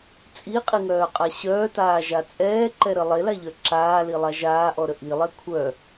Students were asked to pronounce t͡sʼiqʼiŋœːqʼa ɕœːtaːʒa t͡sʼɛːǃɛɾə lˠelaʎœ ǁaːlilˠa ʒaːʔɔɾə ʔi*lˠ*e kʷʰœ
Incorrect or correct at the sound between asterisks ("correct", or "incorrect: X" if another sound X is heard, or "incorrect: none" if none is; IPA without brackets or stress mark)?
correct